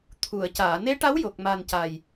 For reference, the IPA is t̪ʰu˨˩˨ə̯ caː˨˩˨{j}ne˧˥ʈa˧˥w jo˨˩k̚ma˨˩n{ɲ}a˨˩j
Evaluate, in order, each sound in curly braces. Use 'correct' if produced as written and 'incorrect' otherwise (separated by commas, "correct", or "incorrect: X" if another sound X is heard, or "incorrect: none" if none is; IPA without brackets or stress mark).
incorrect: none, incorrect: c